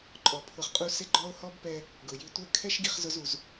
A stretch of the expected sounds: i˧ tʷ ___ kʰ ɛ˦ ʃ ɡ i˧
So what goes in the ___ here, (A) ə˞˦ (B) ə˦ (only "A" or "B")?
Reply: A